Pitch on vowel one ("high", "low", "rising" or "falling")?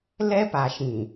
high